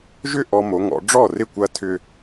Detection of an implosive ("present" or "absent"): absent